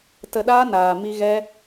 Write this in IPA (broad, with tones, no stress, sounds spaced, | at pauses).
t ə˧ ɗ aː˦ n aː˨ m i˧ ɣ ɛ˦